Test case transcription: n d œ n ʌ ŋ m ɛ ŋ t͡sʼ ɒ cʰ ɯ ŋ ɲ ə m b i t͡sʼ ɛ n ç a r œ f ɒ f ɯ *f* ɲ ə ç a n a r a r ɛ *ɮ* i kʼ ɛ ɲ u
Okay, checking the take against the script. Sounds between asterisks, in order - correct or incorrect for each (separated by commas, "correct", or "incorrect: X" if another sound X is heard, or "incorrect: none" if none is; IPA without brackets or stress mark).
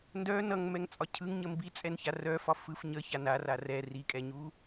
correct, incorrect: r